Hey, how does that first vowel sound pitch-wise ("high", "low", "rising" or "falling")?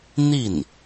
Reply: falling